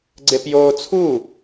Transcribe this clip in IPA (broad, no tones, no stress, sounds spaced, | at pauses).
ɡ͡ǀ e p j oː t͡sʰ u